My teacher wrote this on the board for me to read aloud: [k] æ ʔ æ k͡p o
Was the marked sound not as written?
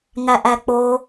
yes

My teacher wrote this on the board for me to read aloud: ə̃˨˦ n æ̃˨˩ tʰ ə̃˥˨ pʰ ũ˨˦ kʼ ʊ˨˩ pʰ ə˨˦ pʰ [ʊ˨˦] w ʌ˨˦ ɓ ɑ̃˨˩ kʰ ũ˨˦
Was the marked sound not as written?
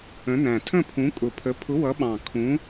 no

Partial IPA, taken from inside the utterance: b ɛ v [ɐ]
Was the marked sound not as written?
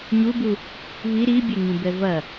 no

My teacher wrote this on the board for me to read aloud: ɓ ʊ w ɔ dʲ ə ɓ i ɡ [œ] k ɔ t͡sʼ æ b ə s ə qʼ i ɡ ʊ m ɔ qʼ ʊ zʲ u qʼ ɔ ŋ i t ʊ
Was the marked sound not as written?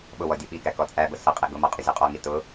yes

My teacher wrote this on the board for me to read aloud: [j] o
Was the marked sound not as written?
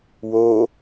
yes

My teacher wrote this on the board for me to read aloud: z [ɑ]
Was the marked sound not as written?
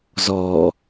yes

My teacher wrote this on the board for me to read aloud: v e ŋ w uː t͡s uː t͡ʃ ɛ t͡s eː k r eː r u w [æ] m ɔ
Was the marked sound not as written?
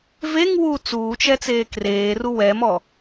yes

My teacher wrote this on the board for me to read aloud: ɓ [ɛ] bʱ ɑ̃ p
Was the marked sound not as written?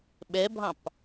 no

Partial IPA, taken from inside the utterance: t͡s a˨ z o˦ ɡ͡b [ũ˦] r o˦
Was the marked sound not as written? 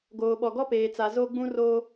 no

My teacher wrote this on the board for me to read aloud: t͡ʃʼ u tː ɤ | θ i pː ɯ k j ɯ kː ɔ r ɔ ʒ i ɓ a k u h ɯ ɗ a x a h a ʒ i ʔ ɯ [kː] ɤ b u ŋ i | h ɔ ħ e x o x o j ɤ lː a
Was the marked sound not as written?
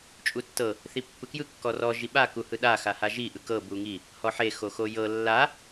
yes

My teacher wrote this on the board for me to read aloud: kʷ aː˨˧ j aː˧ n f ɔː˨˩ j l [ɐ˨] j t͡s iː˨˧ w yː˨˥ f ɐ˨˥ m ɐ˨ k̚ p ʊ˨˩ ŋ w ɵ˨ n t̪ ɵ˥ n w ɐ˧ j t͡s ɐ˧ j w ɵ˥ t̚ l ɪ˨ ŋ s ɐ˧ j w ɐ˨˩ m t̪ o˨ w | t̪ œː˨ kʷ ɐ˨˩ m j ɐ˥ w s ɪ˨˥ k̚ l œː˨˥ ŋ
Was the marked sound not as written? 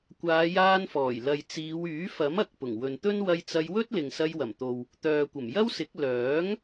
no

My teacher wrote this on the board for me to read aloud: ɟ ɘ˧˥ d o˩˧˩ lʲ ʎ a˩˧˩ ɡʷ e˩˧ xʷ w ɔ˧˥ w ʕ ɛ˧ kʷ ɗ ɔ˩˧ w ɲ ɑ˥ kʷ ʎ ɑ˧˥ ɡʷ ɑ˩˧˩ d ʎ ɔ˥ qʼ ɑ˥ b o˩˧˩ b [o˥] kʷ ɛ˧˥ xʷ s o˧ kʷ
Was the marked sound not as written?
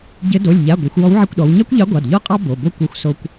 no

